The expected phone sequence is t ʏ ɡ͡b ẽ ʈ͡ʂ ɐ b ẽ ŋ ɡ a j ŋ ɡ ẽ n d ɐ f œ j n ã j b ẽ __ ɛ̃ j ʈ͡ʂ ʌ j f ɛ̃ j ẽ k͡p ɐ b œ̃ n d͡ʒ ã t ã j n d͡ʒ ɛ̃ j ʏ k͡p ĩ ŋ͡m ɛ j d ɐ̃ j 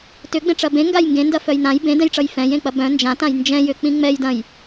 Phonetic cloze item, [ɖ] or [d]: d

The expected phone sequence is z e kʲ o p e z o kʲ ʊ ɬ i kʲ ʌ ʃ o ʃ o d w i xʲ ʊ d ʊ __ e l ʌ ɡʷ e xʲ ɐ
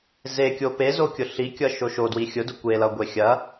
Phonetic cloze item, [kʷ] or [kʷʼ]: kʷ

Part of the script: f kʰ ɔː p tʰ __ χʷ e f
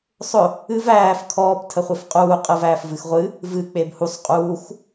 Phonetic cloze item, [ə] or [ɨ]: ə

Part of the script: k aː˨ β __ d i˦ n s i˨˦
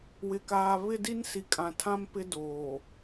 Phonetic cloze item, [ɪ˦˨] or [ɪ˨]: ɪ˦˨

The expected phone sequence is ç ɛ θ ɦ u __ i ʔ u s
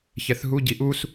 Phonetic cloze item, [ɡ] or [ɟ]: ɟ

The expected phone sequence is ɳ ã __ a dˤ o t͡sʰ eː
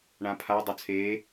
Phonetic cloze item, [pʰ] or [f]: pʰ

